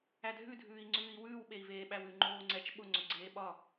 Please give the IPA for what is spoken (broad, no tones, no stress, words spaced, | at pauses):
ædʱʉdʱʉːi̯ŋ͡ǀʉːi̯ wʉːwɓei̯veː ɓæwʉ ŋ͡ǃoːŋ͡ǀɛt͡ʃ ɓʊŋ͡ǀʊ ɡ͡ǀeːɓɒ